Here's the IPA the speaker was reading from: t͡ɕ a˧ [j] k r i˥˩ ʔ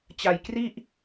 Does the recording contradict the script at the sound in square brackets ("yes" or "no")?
no